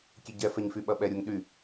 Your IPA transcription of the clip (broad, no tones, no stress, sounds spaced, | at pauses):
kʲ e ɟ ɛ f ɛ ɲ f y ɓ ɐ ɓ ɛ ɾʲ u ŋ ɗ y